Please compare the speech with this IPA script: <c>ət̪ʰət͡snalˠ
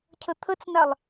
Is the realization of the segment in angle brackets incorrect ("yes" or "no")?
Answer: yes